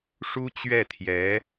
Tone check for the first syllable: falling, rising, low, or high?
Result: high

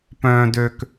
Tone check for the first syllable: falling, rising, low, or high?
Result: low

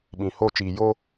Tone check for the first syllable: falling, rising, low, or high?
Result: low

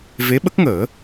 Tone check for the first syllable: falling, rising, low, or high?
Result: rising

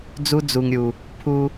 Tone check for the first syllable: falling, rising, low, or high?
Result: high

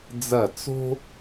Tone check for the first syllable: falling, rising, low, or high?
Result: falling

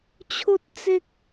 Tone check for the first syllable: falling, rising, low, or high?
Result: high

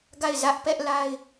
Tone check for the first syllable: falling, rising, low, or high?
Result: falling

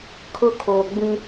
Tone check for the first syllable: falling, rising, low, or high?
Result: high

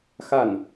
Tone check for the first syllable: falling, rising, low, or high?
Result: falling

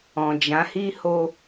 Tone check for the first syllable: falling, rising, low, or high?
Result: low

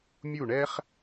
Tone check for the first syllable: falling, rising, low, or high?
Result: falling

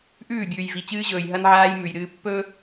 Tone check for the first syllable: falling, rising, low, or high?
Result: falling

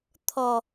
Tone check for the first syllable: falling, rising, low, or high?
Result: low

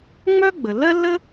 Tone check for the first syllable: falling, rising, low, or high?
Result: high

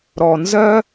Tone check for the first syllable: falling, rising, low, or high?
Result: low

